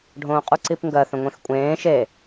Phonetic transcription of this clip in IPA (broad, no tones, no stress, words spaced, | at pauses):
ɖʱõːqʼuǀipŋɡɜ θœ̃ŋʷẽxkʷʼẽː ʃe